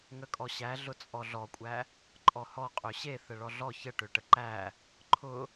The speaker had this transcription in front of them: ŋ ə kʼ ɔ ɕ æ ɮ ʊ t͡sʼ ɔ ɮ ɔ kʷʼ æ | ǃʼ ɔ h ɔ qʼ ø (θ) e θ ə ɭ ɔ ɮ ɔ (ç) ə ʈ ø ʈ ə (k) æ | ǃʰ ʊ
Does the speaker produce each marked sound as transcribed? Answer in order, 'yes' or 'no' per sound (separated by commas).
no, yes, no